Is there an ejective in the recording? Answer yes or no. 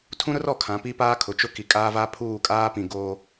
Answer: yes